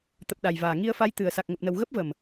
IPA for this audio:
t̪ ə˨˩ p̚ ɗ a˨˩ j v aː˨˩ ŋ i˧ ə̯ f a˨˦ j t̪ ɨ˨˩ ə̯ s a˨˩ k̚ ŋ ə˨˩ p̚ n ə˨˩ w ɣ ə˦˥ p̚ v ə˨˩ m

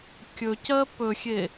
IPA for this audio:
kʲ ɵ c ɜ p ɵ xʲ e

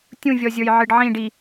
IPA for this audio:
tʲ ũ vʲ ɔ zʲ ə˞ j ʕ ɨ ɖ ʕ ĩ ɖ i

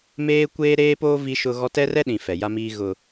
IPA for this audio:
m eː˦ kʷ eː˦ ɾ eː˦ p oː˦ v i˦ ʃ ʊ˦ ɣ ɔ˦ t ɛ˦ r ɛ˦ ɗ ĩ˨ f ɛ˨ j a˦ m iː˦ ɣ ʊ˦

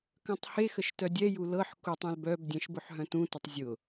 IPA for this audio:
k œ̃ tˤ h e x ə ʃ t œ dʲ ɛ j u l ɤ ħ k u tˤ œ̃ l b œ b dʲ ɛ̃ ʃ b ʊ ħ ɦ œ̃ t ũ t ə tˤ zʲ ʊ

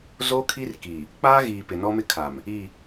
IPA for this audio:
z o˦ kʰ i˦ r k i˨ | k͡p aː˦ ɣ iː˨ p ɪ˨ n ɔ˦ m ɪ˦ kʰ a˨ m | i˦˨

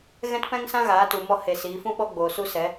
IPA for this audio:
ɣ ɛ̃˦ t p ɛ̃˦ ŋ s ã˦ ɣ aː˨˦ t u˨ m ɔ˧ h e˨ s iː˨˦ f ũ˦ ɓ ɔ˦ ɡ͡b oː˨ s u˦ s ɛ˨˦

